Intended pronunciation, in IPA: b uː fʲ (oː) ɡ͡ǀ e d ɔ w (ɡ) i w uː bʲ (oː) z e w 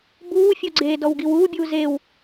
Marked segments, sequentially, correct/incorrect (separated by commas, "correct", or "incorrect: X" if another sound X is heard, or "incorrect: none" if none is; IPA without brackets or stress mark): incorrect: o, correct, incorrect: uː